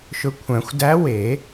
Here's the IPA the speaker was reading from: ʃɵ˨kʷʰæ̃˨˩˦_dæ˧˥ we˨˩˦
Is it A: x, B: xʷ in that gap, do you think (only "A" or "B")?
B